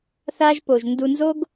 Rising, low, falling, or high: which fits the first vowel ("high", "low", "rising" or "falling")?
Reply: high